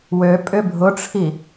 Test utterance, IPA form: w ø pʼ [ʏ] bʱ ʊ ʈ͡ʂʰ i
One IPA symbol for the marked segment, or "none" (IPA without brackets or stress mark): ʏ